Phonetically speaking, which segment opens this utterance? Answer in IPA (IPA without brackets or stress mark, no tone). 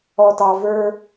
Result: ɔ